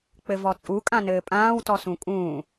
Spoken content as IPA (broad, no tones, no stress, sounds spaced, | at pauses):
k͡p ɘ v ɔ t͡sʼ u kʼ ã n ɘː pʼ ãː w t ɔ s ũ kʼ ũː